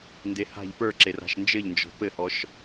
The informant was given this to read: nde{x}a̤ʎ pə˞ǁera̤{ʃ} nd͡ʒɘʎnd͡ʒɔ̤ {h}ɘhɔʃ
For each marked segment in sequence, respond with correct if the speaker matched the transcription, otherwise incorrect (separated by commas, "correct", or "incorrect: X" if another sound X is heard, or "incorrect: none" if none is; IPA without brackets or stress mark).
incorrect: h, correct, incorrect: p